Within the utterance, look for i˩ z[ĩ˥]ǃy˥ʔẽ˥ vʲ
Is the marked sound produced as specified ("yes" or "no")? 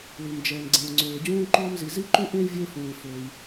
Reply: no